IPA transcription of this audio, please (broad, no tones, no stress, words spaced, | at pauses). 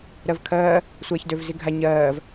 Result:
ɾɜvkʰɜː | sʷɛːçdøvziɡʱa ɲɜːv